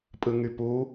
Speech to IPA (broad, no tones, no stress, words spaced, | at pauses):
pʼɯŋypu